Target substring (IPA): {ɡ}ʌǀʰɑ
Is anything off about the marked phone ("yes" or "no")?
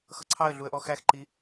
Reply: yes